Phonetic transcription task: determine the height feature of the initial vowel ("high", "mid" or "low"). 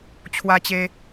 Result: low